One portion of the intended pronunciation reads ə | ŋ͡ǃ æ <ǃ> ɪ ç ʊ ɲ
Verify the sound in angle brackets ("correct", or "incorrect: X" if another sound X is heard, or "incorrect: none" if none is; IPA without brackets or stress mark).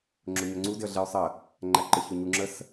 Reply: correct